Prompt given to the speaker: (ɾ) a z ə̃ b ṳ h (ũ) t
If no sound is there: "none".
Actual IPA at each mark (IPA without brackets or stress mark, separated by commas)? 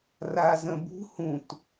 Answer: r, ũ